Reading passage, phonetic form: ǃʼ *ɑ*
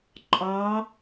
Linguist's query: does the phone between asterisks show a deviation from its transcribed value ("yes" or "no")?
no